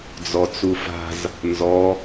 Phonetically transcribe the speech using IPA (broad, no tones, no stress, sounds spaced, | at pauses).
d͡z ɔ t͡s u f a̤ z | n z ɔ